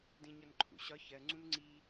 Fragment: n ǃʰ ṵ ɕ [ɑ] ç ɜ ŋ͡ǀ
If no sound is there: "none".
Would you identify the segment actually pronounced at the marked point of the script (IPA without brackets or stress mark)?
ɒ